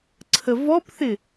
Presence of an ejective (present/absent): absent